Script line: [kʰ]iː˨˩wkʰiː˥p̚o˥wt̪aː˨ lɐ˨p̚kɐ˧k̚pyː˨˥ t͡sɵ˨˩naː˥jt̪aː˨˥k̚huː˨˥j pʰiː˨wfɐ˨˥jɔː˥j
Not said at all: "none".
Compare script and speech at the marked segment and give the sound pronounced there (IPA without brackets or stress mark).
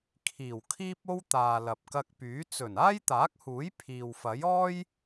kʰ